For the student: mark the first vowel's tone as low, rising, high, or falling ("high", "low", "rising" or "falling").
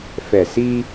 low